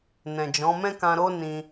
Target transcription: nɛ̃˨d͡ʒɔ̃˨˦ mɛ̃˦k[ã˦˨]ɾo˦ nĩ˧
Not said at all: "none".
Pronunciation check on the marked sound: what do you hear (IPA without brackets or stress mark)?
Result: ã˧